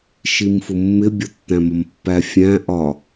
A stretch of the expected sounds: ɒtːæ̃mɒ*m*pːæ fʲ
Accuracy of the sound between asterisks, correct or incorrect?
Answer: correct